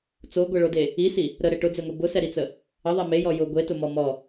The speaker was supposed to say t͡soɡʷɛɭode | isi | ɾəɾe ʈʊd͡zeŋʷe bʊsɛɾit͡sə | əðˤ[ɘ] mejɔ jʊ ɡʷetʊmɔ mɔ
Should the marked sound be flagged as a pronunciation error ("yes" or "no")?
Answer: yes